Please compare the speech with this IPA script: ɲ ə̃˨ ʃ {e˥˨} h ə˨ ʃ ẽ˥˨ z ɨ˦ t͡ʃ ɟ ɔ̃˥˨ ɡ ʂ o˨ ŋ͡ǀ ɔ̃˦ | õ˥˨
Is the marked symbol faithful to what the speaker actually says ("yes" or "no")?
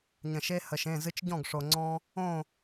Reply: no